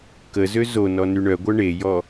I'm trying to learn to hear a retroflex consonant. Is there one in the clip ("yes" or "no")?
yes